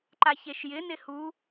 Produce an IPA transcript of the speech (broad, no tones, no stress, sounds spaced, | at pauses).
ǃ a ç e ʃ j ɪ n ɪ h u